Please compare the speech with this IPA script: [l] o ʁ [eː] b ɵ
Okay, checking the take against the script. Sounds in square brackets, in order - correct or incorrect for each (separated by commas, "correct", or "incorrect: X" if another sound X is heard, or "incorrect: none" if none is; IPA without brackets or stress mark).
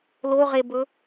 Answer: correct, incorrect: e